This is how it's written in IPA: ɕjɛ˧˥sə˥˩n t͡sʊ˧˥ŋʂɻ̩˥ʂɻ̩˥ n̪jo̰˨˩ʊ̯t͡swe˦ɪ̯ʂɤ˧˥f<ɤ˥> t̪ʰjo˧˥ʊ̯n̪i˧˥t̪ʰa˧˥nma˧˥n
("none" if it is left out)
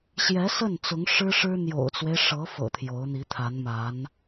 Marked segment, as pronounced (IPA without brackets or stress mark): ɤ̰˨˩